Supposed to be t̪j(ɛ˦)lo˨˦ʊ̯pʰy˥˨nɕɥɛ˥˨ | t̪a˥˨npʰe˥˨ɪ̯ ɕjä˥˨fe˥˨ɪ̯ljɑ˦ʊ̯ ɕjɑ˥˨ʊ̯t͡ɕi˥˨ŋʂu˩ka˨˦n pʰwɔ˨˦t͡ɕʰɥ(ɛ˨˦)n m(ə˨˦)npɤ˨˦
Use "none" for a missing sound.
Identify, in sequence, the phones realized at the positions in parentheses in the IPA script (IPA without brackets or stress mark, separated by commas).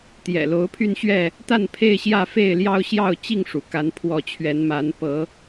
ɛ̰˨˩, ɛ˨˦, a˨˦